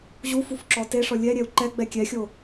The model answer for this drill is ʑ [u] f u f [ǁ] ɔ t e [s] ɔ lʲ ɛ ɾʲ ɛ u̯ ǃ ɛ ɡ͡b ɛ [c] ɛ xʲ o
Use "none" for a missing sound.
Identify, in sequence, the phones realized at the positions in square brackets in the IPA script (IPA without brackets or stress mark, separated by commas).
u, ǁ, ʂ, kʲ